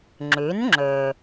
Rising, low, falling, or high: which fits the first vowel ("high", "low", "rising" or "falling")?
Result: rising